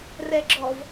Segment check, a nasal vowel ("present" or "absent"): absent